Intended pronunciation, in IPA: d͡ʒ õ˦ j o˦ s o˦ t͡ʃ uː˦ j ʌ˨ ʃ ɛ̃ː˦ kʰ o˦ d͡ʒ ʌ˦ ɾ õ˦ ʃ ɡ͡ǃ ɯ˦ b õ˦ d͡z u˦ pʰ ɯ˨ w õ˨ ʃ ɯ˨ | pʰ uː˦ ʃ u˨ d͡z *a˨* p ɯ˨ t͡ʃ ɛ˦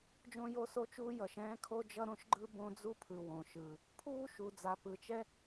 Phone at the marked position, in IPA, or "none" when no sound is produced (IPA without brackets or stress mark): a˨